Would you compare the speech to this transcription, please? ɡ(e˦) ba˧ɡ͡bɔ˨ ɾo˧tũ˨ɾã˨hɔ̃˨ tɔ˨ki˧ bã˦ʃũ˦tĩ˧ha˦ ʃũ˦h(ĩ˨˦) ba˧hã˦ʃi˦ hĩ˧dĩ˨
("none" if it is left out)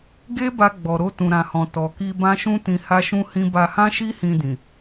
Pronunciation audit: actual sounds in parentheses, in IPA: e˦, ĩ˦

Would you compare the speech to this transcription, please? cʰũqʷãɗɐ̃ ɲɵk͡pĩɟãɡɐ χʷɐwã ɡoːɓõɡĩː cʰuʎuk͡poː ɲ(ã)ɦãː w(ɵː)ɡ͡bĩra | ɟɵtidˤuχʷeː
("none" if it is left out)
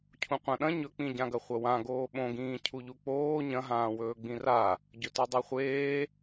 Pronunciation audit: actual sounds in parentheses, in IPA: ɐ̃, ɵː

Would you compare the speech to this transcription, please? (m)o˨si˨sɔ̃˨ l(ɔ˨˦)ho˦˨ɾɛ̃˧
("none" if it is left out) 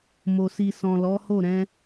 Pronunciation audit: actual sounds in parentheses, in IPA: m, ɔ˨˦

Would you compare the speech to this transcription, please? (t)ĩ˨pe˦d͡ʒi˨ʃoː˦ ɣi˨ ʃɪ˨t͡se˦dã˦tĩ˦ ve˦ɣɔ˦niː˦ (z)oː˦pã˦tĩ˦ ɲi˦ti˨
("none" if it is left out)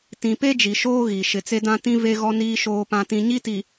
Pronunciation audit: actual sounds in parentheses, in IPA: t, ʃ

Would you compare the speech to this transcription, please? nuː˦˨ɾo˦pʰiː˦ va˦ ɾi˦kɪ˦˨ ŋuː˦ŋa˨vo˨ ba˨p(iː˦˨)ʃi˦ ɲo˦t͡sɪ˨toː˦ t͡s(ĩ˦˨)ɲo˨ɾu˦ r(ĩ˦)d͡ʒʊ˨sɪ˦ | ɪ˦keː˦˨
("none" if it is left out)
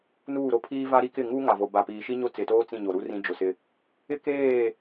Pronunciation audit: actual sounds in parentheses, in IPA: iː˨, ĩ˦˨, ĩ˦

